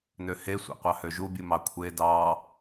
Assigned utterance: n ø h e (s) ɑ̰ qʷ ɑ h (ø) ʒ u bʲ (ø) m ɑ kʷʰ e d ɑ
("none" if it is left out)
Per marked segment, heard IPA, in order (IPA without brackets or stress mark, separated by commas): sʷ, ø, u